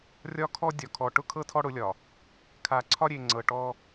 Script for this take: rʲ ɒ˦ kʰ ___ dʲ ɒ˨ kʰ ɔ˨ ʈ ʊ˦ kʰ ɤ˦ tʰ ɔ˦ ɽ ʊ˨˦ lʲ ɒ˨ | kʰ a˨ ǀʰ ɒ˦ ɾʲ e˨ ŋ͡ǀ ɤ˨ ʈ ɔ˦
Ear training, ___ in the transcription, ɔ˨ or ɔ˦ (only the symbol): ɔ˦